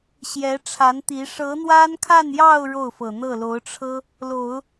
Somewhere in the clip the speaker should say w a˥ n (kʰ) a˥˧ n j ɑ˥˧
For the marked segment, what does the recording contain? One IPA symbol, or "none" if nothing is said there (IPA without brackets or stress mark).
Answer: kʰ